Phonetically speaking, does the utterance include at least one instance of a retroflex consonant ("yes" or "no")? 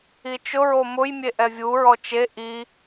no